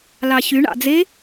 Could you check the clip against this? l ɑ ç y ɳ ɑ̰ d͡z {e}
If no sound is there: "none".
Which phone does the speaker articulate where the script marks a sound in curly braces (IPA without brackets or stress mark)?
e